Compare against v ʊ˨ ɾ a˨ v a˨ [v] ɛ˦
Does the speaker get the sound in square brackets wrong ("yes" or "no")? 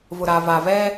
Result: no